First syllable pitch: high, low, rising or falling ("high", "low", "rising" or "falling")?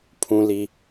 low